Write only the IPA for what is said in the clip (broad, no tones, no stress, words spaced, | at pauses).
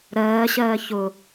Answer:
ɾɜːɕɜː çʊ